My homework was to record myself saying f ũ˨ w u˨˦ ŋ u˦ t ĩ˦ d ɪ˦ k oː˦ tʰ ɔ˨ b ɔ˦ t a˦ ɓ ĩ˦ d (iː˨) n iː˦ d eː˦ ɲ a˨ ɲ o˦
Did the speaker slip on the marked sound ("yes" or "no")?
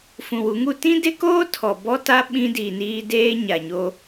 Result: no